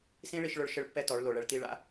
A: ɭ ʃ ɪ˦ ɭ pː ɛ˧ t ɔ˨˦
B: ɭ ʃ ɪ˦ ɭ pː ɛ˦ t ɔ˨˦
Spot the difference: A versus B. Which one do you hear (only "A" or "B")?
B